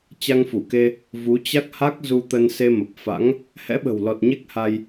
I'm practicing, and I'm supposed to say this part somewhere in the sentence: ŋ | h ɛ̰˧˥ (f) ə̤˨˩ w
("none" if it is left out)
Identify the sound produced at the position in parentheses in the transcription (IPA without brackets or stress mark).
ɓ